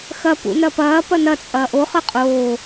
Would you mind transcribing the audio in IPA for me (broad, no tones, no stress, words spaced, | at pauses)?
xɐ pṵnɐpɐː pɐnɐ t͡sʼɐːʔo χɯqʼoː